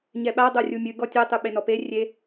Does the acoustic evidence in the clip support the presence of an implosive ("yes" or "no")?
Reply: yes